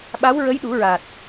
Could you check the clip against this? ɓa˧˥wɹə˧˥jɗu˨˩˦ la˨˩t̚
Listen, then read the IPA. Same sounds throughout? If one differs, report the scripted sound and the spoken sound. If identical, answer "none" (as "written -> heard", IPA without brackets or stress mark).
l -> ɹ